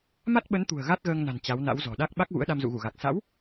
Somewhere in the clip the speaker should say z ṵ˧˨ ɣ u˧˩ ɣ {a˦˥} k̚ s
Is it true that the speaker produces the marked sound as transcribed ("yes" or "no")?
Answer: no